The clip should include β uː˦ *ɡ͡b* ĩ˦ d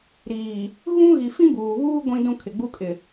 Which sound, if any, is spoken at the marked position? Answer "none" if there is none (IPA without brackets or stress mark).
ɡʷ